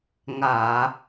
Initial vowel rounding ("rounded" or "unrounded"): unrounded